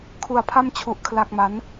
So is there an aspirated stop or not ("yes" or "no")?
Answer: yes